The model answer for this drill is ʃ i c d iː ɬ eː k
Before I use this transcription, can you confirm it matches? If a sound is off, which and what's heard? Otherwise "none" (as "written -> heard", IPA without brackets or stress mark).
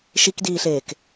c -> k